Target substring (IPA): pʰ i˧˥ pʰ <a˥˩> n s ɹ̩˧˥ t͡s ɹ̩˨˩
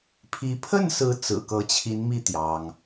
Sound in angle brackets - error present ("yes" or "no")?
yes